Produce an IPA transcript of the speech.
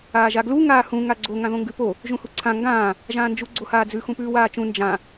aːʒaɡlu ŋaːhũ ŋaɡ͡ǀo ŋãðõŋɡʉpo | ʒũhuǀʰã ŋɡãː | ʒãːnd͡ʒu ɡ͡ǀohaːd͡zʉ xũpʉːwaːt͡ʃũ nd͡ʒã

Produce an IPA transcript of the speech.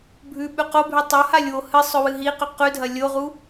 bʱʉɓʉ qobʱʉ tˤohalʲ wohɨsˤɵ wɨɦiqɵ qʉdʱɐ lʲoʁu

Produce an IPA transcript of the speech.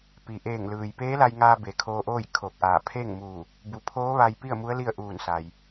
pi˩ʔeː˧˩ŋlɯː˩j peː˧˥la˧jŋaː˧ be˩kʰoː˧ʔoː˥˨j kʰoː˧˩k̚ʔaː˧˩ pʰe˥˨ŋmuː˧˩ | bu˩˧ pʰoː˧˥ʋa˧j pi˥˨ə̯mu˧˥ə̯ li˥˨ə̯ʔuː˧˩nsa˩j

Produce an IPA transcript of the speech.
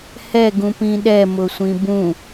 hɛ ɡũpĩɗɛ mʊsʷĩbũ

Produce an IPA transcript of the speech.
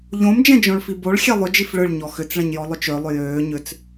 ʎõm d͡ʒɛ̃d͡ʒõɭfiboɭ xʲelˠʏ d͡ʒifɭɯɭ ɲɔxʏt͡sɭɛ̃ɲ jɔlˠʏt͡ʃø lˠʏjøː ɲʏt͡s

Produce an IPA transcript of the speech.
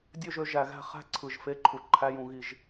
dʲø˥˧ʒø˩˧ ʒæ˧˩˧ɣæ̤˥˧ χæ̤˥˧ ǀʰɯ˨˩ʒfe˧˥˧ǃʰu˨˩ ǃʰæ˧˥˧jũ˧˩˧ɣi˧˩˧ʒ

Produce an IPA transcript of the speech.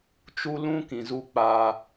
t͡ʃu˦ lũ˦ kĩ˨zu˧ k͡paː˧

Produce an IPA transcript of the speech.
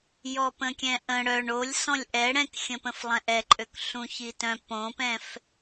jɔpə̃kʲɛ̃ʔə̃ ɽœɳ olʲsɔ̃lʲ ʔɛ ɽɛ̃kxʲə̃pə̃flˠɛ̃ ʔɛǃʼøkɬũ çitœ̃ põpɛ̃f

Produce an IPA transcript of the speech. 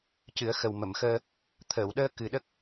cɨ˨˩˦ə̯xə˨˩w mə˨˩˨mxəː˧ | t̪ʰəː˨˩˨wɗəː˧ kɨ˨˩ɗə˦˥k̚

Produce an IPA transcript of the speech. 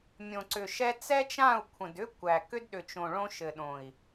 mʲõ˨ǀʏ˨ʃɛ˦ t͡sɛ˦t͡ʃã˦˨u̯ kʷʰə̃˨d ʏ˦ kʷæ˨ kʏ˦dɗʏ˨t͡ʃõ˨ ɭõ˦ʃɘ˨ɗõ˨i̯

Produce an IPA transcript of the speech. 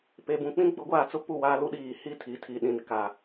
pe˨bũ˨ k͡pĩ˦ɡ͡bʊ˨˦ɡʷaː˨t͡sʊ˦ pu˦˨waː˦lu˦ɗiː˨ hi˦˨tʰi˨tʰi˨ ɗĩ˨nka˨

